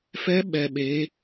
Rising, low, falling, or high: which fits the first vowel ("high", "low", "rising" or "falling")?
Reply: rising